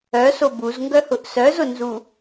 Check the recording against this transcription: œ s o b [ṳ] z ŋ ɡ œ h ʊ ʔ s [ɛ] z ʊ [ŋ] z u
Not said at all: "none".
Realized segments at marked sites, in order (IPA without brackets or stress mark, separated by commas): u, œ, n